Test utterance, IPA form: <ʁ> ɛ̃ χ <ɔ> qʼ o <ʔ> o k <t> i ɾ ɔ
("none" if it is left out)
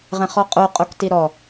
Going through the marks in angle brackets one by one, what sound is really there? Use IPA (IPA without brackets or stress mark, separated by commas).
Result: ʁ, ɔ, qʼ, t